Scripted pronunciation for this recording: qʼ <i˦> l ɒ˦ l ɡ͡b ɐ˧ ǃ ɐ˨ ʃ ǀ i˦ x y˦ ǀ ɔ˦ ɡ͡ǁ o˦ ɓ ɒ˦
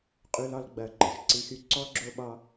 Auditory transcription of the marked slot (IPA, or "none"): y˦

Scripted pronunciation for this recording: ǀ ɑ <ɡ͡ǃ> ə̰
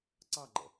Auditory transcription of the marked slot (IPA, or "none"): ɡ͡ǃ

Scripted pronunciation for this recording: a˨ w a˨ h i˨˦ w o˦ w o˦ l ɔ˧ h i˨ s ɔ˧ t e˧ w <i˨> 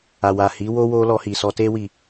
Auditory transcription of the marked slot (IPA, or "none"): i˨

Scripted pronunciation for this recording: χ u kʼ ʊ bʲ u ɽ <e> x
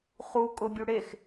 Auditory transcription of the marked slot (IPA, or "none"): e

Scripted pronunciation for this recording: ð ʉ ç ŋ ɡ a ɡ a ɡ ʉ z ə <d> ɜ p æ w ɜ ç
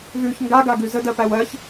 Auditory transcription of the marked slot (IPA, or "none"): d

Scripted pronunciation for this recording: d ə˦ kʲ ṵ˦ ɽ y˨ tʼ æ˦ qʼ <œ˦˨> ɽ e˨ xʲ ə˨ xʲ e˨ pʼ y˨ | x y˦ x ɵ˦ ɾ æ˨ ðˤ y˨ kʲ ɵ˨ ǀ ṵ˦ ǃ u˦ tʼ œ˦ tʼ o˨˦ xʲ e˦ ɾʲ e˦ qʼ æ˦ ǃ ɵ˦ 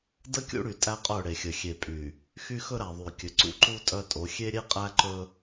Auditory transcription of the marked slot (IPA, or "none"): œ˦˨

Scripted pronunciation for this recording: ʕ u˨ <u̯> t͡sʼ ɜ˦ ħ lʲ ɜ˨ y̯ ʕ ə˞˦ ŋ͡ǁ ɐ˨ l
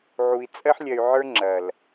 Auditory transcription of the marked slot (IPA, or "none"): i̯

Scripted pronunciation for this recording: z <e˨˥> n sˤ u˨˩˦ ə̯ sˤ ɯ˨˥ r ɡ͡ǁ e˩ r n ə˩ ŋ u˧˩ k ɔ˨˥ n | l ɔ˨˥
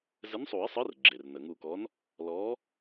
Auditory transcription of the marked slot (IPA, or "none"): ɘ˨˥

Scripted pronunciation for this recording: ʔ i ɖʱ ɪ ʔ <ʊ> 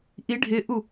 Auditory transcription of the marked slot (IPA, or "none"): u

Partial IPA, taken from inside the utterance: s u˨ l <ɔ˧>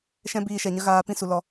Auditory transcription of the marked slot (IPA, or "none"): ɔ˧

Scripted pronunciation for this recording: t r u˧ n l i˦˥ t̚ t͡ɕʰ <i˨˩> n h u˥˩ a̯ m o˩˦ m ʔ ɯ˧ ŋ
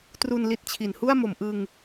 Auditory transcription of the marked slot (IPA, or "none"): i˩˦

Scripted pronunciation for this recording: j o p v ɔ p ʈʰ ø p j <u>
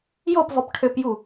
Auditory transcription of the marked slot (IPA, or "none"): u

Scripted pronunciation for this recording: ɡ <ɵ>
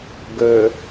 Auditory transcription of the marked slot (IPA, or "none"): ɵ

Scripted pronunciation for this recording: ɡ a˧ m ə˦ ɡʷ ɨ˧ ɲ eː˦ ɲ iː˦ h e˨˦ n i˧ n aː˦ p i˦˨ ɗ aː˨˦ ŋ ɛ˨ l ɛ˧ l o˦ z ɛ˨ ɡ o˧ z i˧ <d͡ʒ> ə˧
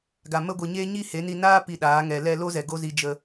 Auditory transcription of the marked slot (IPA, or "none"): d͡ʒ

